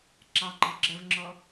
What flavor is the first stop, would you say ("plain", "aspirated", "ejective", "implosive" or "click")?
click